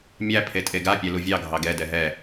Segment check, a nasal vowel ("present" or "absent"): absent